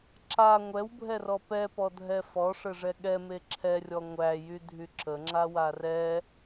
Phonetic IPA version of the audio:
ǁ a ŋʷ ɛ w bʱ ɛ r ɔ p ɛ p ɔ dʱ ɛ f ɔ ʂ ɘ ʐ ɛ ɠ ɛ m e ǁʰ ɛ rʲ ɔ ŋʷ æ j y dʱ y ǁ ə ŋ͡ǁ a w a r ɛ

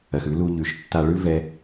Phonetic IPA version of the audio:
ɜ˨ x ʉ˦ l u˧ ʎ ʉ˨ ʃ tː a˧ ɭ ʉ˦ v ɛ˦

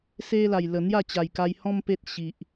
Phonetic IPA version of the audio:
s e˧ l a˨˩ j l ə˨˩ n̪ j a˥˧ t͡ɕ a˨˩ j k a˧ j h ɔ̃˦ m p e˦ t̚ ɕ i˨ ʔ

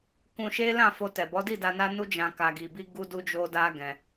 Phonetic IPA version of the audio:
k ũ˧ ʃ e˦ l ã˦˨ f o˧ t ɛ˨ b ɔ˨˦ d i˦˨ d a˧ n a˦ n u˦ d͡ʒ ã˧ k a˧ ɡ i˧ b i˦ ɡ u˦ d u˦ d͡ʒ o˦ d a˦ ɡ ɛ̃˧

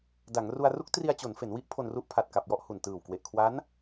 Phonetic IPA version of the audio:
d a˩˦ ŋ r u˧ a̯ r u˦˥ k̚ t r i˧ a̯ t͡ɕ o˩˦ n f e˩˦ n w i˦˥ ʔ pʰ o˧ n r u˦˥ ʔ pʰ a˨˩ t̚ k a˨˩ p̚ j ɔ˥˩ ʔ h u˨˩ n t ɯː˨˩ w k w e˨˩ ʔ kʰ w a˦˥ n

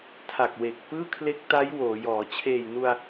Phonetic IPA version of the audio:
tʰ a˨˩ k̚ w e˨˩ k̚ p ɯː˥˩ kʰ l e˦˥ k̚ t a˦˥ j w oː˩˦ j ɔː˩˦ t͡ɕʰ eː˨˩ j n u˧ a̯

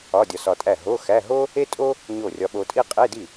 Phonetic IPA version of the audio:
ɒ˧˥˧ dʲ ɒ˧ s ɒ˧ tʼ æ˥˩ ɦ o˧˥˧ x æ˧˥˧ ɦ o˥ | e˥ tʼ o˥ | ɲ o˥˩ rʲ ɒ˧ ɓ o˧ tʼ i˥ qʼ e˧˥˧ d i˥˩

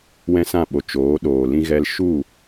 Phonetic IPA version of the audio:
w ɛ̃˦ s ã˦˨ ɓ o˨ t͡ʃ oː˨˦ ɗ oː˨ l ĩ˦ ɣ ɛ˦ l ʃ u˦˨

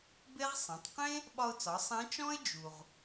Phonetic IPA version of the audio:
b e˥ ʁ sˤ ɛ̃˩˧ tˤ q ẽ˥ | ɓ ɒ˧ ʊ̯ t͡s ɒ˩˧ sˤ ẽ˧˥ t͡ʃ ɔ̃˥ ɪ̯ d͡ʒ u˩ ʁ

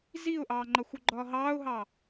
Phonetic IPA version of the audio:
z i ʊ̯ ʔ ɑː ŋ͡ǃ ʌ xʷ u ɡ͡ǃ ɒː ɦ ɑː ʊ̯ ɦ ɑ

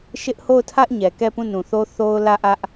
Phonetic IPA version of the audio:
ʃ ɪ˦ ʔ h o˦˨ ʊ̯ tʰ ä˦ ʔ ɲ ɛ˨ k ɛ˦˨ p ũ˦˨ n ũ˨ θ o˦ θ o˦ ʊ̯ l ä˦˨ ʔ ä˦ ʔ

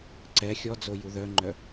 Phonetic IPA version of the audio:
ǀ ɛ xʲ ɔ d͡z o j u ð œ ŋ͡ǃ œ

